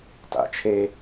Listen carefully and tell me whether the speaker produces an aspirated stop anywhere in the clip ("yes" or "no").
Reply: yes